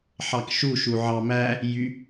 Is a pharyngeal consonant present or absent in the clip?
present